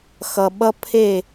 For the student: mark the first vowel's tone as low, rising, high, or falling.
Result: low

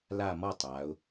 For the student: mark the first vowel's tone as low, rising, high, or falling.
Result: falling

